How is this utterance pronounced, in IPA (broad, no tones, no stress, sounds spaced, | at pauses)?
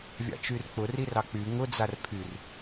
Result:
vʲ ɑ̰ t͡ʃ y r k͡p ʊ r i r ɑ k͡p y ŋ ʊ d͡z a r pʰ y r